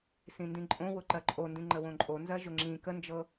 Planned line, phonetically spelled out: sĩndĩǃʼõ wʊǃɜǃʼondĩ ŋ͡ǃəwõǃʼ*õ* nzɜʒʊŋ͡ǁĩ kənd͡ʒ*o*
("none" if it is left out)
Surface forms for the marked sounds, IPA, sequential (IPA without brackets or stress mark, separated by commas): o, ɤ